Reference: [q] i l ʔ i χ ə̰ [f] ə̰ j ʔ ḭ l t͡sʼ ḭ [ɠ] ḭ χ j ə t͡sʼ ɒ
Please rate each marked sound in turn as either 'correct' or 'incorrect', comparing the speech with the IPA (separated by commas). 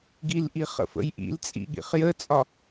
incorrect, correct, correct